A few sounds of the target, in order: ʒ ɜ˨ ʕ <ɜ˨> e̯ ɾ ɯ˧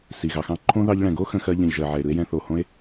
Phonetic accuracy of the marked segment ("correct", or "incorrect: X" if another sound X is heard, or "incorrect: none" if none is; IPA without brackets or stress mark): incorrect: ɛ˨